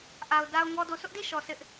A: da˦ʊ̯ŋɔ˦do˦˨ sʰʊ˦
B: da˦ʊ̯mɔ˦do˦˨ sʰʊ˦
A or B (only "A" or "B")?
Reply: A